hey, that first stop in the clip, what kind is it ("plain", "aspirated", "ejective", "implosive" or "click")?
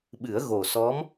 implosive